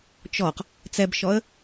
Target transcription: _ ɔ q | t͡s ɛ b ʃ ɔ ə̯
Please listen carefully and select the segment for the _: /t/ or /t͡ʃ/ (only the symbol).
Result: t͡ʃ